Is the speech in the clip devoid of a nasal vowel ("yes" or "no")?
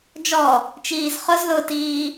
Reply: yes